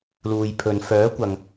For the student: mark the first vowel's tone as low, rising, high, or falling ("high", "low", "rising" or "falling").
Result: low